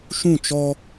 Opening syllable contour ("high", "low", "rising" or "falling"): falling